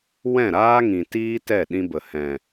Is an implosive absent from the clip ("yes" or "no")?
no